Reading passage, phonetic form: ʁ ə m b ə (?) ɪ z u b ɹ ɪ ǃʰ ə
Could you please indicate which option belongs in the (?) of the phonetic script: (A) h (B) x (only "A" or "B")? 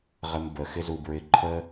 B